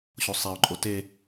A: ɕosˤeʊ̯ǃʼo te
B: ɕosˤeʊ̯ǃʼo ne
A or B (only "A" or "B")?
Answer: A